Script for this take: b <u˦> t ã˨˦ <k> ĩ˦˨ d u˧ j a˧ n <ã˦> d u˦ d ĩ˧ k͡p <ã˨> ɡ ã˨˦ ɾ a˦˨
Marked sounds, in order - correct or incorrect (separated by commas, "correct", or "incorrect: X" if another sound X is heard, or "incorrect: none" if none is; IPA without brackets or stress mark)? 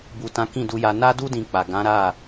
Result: incorrect: u˨, correct, incorrect: a˦, incorrect: a˨